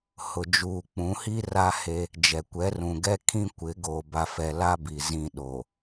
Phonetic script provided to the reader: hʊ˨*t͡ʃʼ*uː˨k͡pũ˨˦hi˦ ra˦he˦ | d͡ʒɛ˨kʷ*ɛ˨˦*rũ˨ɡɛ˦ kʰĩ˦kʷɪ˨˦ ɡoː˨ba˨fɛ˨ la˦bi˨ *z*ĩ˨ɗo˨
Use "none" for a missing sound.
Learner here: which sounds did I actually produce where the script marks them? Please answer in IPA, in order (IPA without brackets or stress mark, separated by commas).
d͡ʒ, ɛ˨˦, z